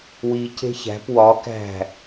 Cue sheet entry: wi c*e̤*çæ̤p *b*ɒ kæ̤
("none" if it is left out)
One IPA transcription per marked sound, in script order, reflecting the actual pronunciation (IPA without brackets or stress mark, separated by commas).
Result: e̤, w